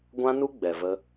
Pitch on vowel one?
high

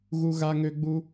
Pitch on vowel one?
high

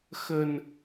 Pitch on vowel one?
low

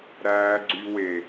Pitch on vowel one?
high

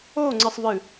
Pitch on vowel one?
falling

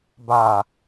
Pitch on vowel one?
low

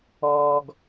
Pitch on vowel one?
low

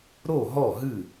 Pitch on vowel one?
falling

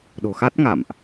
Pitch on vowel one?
low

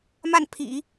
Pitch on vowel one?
falling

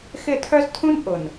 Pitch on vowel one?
falling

